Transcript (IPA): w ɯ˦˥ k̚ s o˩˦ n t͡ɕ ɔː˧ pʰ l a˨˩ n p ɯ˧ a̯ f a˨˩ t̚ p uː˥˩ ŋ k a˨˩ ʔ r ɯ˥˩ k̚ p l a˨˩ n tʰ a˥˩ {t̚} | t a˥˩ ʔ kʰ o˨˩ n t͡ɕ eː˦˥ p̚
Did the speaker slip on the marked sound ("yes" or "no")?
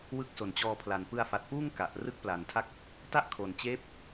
yes